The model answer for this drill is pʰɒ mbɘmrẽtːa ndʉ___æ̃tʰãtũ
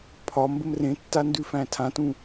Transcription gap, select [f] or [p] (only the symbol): f